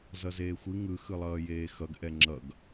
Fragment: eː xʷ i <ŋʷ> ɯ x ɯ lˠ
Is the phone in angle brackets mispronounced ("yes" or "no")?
yes